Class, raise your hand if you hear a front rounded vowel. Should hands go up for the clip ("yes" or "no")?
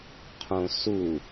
no